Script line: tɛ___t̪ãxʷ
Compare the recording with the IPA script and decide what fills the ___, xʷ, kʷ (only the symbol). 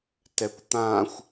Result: kʷ